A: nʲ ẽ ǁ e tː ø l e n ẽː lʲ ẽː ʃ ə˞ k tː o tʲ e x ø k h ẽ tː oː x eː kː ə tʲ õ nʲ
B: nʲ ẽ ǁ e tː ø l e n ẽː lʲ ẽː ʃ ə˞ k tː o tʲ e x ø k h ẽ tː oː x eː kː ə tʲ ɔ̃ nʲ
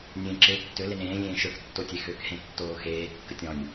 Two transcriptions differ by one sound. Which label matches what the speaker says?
B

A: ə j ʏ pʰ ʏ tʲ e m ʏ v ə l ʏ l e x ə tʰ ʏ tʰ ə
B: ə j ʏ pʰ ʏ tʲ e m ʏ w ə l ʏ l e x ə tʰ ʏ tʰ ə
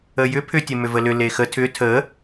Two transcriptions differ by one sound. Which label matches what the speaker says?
A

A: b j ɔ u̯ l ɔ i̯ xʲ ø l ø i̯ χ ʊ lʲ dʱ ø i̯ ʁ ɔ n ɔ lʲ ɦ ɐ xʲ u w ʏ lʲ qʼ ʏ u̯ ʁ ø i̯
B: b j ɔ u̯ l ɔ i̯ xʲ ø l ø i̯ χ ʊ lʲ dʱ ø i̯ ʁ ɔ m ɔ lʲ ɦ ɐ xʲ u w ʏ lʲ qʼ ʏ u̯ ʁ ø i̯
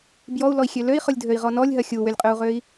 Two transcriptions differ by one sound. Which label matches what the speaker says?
A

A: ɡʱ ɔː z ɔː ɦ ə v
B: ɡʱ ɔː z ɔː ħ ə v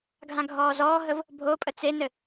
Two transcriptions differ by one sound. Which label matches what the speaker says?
A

